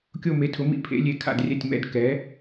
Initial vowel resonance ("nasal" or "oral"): oral